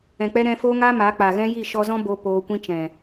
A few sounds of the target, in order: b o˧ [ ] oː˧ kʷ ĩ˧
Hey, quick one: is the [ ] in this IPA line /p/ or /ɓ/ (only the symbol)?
p